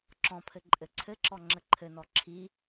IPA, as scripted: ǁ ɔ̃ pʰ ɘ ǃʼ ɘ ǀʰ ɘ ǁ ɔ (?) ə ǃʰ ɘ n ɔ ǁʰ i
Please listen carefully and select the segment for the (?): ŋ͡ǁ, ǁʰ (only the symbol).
ŋ͡ǁ